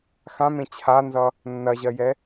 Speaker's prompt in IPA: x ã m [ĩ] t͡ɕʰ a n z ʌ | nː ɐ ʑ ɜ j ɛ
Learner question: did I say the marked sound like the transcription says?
no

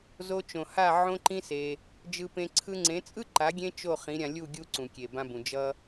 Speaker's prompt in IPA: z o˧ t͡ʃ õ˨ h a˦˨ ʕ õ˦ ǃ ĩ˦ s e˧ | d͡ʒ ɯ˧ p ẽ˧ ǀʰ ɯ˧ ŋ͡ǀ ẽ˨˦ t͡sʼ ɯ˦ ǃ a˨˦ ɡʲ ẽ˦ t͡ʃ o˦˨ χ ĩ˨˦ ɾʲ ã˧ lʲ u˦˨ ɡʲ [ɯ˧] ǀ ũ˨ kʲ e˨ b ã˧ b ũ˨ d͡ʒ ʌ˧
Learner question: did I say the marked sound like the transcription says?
no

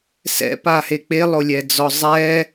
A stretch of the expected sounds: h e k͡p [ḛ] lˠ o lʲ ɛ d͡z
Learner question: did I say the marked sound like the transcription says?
no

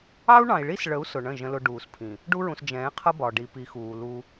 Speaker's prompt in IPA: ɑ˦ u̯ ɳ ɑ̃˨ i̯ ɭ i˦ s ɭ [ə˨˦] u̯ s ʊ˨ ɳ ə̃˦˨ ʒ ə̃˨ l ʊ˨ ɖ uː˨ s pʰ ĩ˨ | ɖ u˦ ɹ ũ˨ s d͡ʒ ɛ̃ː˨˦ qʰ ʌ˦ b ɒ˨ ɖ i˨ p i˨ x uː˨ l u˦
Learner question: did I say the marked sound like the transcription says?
yes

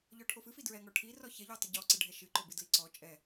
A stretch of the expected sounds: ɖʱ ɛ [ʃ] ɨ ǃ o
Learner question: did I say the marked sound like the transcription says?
yes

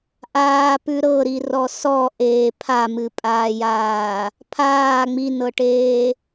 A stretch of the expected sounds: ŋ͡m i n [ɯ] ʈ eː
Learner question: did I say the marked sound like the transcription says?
no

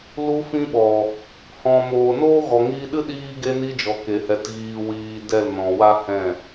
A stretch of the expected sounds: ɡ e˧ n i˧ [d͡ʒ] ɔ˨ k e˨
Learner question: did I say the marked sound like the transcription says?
yes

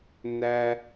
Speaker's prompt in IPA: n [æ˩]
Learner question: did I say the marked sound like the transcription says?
yes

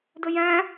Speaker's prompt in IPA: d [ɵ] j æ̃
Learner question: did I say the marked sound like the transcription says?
yes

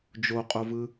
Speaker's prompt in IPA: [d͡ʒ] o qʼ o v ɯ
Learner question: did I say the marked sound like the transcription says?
yes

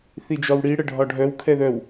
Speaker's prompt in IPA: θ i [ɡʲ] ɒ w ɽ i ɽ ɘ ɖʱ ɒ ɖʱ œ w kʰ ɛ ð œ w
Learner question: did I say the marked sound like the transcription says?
no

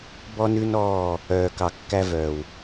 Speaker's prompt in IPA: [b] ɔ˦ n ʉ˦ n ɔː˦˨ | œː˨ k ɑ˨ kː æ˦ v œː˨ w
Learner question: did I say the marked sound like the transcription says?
yes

